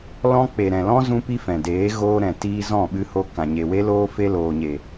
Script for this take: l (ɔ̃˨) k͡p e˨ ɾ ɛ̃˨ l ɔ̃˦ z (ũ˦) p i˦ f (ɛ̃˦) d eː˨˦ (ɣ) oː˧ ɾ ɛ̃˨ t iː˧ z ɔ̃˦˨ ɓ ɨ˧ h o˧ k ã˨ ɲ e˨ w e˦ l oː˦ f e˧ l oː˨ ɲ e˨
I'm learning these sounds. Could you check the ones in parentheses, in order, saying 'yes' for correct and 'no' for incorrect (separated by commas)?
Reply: no, yes, no, yes